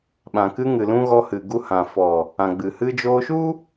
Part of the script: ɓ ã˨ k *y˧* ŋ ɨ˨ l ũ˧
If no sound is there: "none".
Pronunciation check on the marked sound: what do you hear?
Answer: ɨ˧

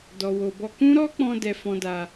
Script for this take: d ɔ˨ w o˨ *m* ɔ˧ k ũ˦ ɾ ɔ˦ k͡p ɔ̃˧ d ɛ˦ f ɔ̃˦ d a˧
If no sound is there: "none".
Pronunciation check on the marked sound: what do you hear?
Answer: b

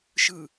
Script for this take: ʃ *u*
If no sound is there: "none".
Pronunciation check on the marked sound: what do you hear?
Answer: ɯ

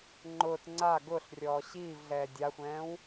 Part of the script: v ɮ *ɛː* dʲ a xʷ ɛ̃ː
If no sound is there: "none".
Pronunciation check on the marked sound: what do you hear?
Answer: ɛː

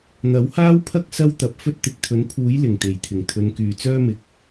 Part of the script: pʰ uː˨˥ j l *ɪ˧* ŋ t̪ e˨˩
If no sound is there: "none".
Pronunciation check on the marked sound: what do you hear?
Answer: ɪ˨˩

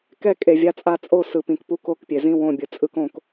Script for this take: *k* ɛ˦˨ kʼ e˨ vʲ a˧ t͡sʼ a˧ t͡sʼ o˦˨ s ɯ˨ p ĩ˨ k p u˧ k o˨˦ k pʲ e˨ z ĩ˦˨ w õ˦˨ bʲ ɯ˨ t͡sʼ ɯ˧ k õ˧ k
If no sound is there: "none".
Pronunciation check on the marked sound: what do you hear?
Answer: k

